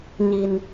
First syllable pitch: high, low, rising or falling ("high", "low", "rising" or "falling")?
low